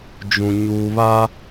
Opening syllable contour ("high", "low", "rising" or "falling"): low